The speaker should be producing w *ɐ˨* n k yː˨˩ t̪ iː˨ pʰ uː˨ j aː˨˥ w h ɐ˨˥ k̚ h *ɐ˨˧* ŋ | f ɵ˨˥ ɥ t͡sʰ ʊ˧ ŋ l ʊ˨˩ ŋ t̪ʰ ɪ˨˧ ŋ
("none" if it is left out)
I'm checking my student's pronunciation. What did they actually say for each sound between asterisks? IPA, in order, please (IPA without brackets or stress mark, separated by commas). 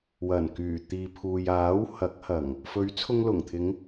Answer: ɐ˨˩, ɐ˨˩